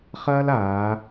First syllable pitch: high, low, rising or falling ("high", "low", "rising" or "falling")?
high